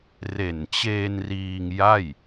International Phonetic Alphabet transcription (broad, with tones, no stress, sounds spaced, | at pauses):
r e˨˩ n t͡ɕ eː˧ n r iː˧ ŋ j a˥˩ j